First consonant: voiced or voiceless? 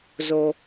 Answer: voiced